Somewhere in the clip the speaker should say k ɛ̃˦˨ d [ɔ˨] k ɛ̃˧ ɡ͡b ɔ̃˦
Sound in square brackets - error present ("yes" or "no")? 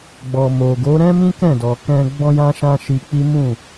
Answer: no